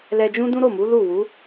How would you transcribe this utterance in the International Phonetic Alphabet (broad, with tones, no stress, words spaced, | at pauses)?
lɛ˧d͡ʒũ˦dũ˦ ɾo˦˨mu˨˦ lu˦˨wu˨˦